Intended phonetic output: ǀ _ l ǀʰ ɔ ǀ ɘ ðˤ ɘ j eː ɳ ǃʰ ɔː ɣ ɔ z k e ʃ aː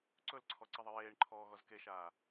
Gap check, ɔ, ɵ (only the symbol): ɵ